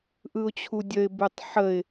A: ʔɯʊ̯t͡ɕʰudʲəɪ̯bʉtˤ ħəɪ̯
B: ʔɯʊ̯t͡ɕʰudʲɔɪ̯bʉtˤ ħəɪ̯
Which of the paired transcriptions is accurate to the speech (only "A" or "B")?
A